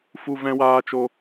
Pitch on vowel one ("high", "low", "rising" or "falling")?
high